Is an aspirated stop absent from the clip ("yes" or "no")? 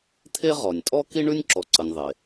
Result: no